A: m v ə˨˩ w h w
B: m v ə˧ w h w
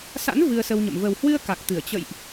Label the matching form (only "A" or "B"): A